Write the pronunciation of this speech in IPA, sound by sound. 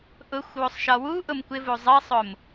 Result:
ʔ ʊ xʷ w u sˤ ʃ ɒ w u ʔ ʊ m kʷ ɪ v u zˤ ɜ sˤ ʊ m

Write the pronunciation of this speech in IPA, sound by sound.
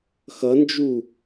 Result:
x ʌ n d͡ʒ u

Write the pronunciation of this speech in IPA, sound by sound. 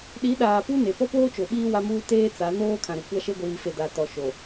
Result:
ɗ i˨˦ ɗ aː˨ p u˦ n e˨ p ɔ˦ p oː˦ t͡ʃ o˨ ɓ iː˦ w a˦ m uː˦ t eː˦ t͡s a˨˦ n oː˦ kʰ ã˨ ɾ ʊ˨ kʷ a˦ ʃ e˦ ɡʷ iː˨ f e˨ d a˨ t ɔ˨ ʃ o˨

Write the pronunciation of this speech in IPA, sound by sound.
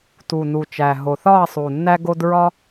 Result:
t u˨˩ n u˨˩ t͡ʃ æ˨˩ ɦ o˨˩ θ ɒ˦˨ ɐ̯ sˤ u˨˩ nː æ˦ ɡ o˦ d ɹ ɒ˦

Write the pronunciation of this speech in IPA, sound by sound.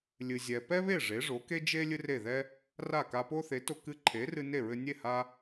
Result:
lʲ ɨ˩ zʲ ɛ˩ p ɛ˥ β e˥˩ ʐ e˩˥ ʐ o˩˥ k e˥ d͡ʒ e˥ lʲ ɨ˥ r e˥˩ ð ɛ˥ | r a˥˩ k a˧ p o˥ θ e˩˥ t o˧ k ɨ˧ ǃʰ e˩˥ r ɨ˧ n e˥˩ ɹ ɘ˧ nʲ e˥˩ h a˥

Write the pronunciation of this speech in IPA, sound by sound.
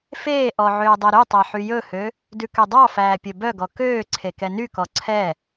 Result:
f eː ʔ ɔ ʕ øː dˤ ɛ ɾ y tˤ æ ħ y j ɵ h ø | d ʉ k ø dˤ ɑ f æː pʲ ɵ b œ ɡ ɔ k øː ǀʰ e k ɛ n y k ɔ ǀʰ ɛ

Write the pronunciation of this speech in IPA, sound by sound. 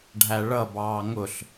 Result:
ɖʱ æ ɭ ʌ b ɑː ŋ ʊ ɬ

